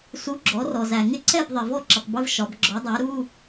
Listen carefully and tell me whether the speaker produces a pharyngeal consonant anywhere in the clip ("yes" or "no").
no